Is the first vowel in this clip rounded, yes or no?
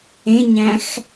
no